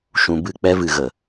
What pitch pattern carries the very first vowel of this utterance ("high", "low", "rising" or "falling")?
low